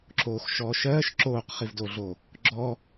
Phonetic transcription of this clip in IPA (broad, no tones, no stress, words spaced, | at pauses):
ǁoːxʃɔːʃɜːʃ ǁoːqχivdoɮo | ɡ͡ǁɔ